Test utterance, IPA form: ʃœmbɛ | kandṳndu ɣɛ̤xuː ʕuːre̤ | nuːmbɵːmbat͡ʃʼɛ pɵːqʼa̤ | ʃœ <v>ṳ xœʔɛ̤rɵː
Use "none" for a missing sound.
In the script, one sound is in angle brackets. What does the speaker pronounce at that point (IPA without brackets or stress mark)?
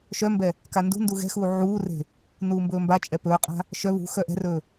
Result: β